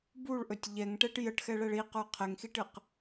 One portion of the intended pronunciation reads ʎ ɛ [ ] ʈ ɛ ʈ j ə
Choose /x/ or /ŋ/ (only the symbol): ŋ